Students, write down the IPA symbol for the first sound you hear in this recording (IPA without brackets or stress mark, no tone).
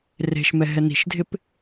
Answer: r